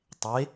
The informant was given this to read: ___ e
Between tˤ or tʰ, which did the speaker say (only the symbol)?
tˤ